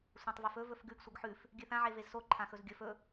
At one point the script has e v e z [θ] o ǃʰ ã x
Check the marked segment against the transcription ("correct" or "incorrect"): incorrect